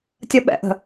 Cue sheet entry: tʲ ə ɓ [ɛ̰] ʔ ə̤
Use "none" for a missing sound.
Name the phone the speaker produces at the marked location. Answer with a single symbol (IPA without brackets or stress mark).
ɛ̰